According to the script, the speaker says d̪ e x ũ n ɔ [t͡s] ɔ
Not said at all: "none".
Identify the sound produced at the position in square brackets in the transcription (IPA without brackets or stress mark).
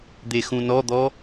d̪